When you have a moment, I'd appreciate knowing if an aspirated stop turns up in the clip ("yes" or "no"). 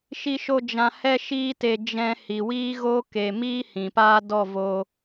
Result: no